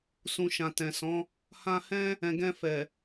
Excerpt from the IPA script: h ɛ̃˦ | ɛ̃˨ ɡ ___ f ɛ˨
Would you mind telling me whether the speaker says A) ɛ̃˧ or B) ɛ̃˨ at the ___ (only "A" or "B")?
A